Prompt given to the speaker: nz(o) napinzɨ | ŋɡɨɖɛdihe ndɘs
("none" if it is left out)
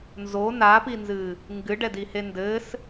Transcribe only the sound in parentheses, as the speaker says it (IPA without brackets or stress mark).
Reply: o